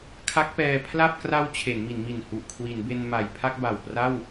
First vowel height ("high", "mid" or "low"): low